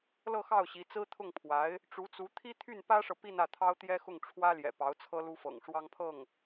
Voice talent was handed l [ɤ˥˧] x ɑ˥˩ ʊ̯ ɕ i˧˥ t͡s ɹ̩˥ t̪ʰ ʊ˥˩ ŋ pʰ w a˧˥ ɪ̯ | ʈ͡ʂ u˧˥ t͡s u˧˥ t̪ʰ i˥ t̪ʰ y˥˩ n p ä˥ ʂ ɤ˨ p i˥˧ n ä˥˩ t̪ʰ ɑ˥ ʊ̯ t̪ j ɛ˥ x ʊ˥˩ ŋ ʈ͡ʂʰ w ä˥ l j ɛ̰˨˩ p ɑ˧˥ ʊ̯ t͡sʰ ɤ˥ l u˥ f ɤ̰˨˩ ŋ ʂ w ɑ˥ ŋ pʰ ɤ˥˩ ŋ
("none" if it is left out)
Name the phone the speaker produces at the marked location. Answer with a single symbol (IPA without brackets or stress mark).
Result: ɤ˥˧